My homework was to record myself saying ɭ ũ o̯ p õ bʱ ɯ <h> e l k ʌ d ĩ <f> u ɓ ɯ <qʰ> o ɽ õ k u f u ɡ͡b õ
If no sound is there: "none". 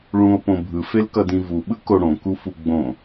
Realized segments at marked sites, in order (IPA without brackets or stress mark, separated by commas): f, v, k